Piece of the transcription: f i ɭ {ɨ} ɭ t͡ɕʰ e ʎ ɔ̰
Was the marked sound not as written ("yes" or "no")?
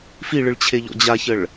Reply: no